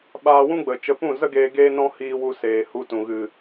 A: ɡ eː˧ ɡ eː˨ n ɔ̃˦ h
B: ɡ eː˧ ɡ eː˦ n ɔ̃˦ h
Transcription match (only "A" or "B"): B